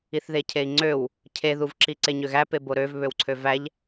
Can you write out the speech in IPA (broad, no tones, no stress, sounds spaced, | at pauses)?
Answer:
i θ ð e cʰ e i̯ ŋ͡ǀ ø w | cʰ e ð u v ǁ i ǀ e ɲ ø ɣ æ p e b o ɾ ø v β ø w ǀʰ ø v æ ʎ